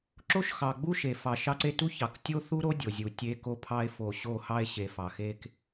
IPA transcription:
ǁ o˦ ʃ x ɑ˨ ɡ͡b u˦ ʃ e˨ f ɑ˨ ʃ ɑ˦ ǀ e˦ t u˦ ç ɑ˨ k tʲ o˦ θ u˦ ɾ o˦ dʲ o˨ zʲ u˨ tʲ e˦ k o˦ pʰ ɑ˦ e̯ f o˨ ɕ o˦˨ h ɑ˦ e̯ ɕ e˨ f ɑ˨ x e˦ k

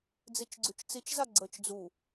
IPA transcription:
d͡z i t͡ʃ ɡ͡ǀ y t͡ʃ t͡s i t͡ʃ z a ɡ͡ǀ ə t͡ʃ d͡z u

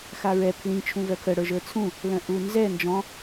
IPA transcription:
x a ɹ ɛ pʰ l ĩ t͡ʃʰ ũ v œ kʰ ə ɽ ə˞ ʒ ə˞ t͡sʰ ũ | l œ̃ ʔ u n z ɛ n d͡ʒ ɔ̃

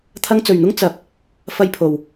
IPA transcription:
t̪ʰ ɐ˧ ŋ t͡s ɵ˨ ɥ n̪ ʊ˥ ŋ t͡s ɐ˨˥ p̚ | f ɐ˧ j pʰ o˨ w

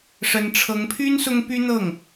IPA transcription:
ʂ ə˧˥ n ʈ͡ʂʰ ɤ˧˥ ŋ pʰ y˥ n s ʊ˥ ŋ p y˥ n̪ ɤ˥˩ ŋ

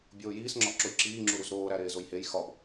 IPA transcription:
bʲ oː j iː s ŋ͡ǁ ɒ ʔ ǁ o j ǁ iː ŋ͡ǁ u ɾ u z ɾ oː ɾ æ ɾ eː z o j h e j x ɒ b

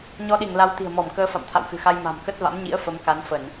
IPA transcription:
ɲ ɔ˧ ɗ i˧˩ ŋ l a˨˦ w t̪ i̤˨˩ ə̯ m ɔ˧˩ m k əː˨˦ f a̰˧˨ m t̪ʰ a̰˧˨ w x ɨ̤˨˩ x a˧ j m a̤˨˩ m k ə˦˥ t̚ v a̰˧˥ m ɲ ḭ˧˥ ə̯ f ə˨˦ m k a˨˦ n f ə˧˩˨ n

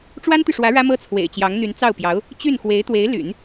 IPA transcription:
ʈ͡ʂ w a˥ n t̪ y˨ ʂ w ä˧˥ ɻ ä˥ m ɤ˥ t͡sʰ w ḛ˨˩ ɪ̯ t͡ɕ j ɑ˧˥ ŋ n̪ y˧˥ n t͡s ɑ˥˩ ʊ̯ p j ɑ˧˥ ʊ̯ | t͡ɕ y˥˩ n x w e˧˥ ɪ̯ t̪ w e˧˥ ɪ̯ l y̰˨˩˦ n

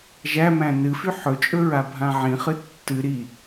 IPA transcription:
ʒ æ m æ̃ n ɨ f y ħ ɵ t͡ʃʼ ɵ ɹ a bʱ ã ʕ ĩ χ ɨ tː ɨ ɾ i

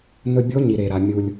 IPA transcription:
n ɵ˧ bʲ o˧˥ ɲ i˩ ɾ e˩ ɾ a˩ mʲ u˩ lʲ

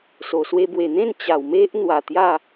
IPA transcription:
s o˨˩ s w e˧ b w e˨˩ n̪ ẽ˥˧ n t͡ɕ a˨˩ w m e˦ ʔ n̪ w a˨˩ t̪ j a˥˧

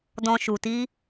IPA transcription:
d ɔ̃˧ ʃ u˧ t i˦

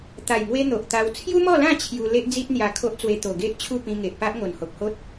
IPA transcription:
t̪ a˨˩ j ŋ w e˧ n̪ o˨ ʔ t̪ a˧ w t͡sʰ j u˦ m ɔ˥˧ l ã˥˧ t͡ɕʰ j u˧ l e˦ ʔ d͡z i˦ t̚ n̪ j a˥˧ kʰ o˦ ʔ t͡s w e˧ t̪ o˨˩ ɡ e˦ ʔ t͡ɕʰ u˥˧ p ĩ˧ ŋ e˨ ʔ p a˦ ʔ ŋ o˨˩ n h o˨ k̚ h o˦ t̚

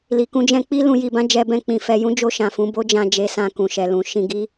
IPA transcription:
l i˨ k ũ˧ d͡ʒ ɛ̃˧ k͡p i˦ l ũ˧ j i˧ b ã˦ d͡ʒ ɛ˧ b ɛ̃˧ k͡p ĩ˨ f ɛ˧ j ũ˦ d͡ʒ o˧ ʃ ã˨ f ũ˧ b o˦ d͡ʒ ã˧ d͡ʒ e˧ s ã˧ k ũ˨ ʃ ɛ˨ l ũ˨ ʃ ĩ˧ ɡ i˦

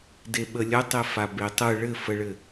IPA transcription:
d e ɓ ə lʲ ə tˤ e f a b e tˤ ɯ ɭ ɘ f ə ɭ ɘ

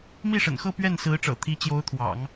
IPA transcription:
m i˥˩ ʂ ə̰˨˩ n x ɤ˥˧ p ɥ ɛ˥˩ n s ɹ̩˧˥ ʈ͡ʂ ɤ̰˨˩ t̪ʰ i˧˥ t͡ɕ j o˧˥ ʊ̯ t̪ʰ w ɑ̰˨˩˦ ŋ

